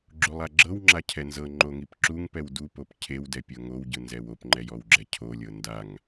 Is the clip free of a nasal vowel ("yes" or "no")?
yes